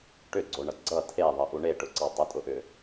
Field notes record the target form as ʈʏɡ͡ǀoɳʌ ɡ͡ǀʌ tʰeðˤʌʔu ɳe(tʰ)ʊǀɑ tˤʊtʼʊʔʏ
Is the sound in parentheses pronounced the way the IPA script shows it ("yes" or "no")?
no